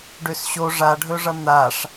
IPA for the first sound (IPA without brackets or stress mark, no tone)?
ɖ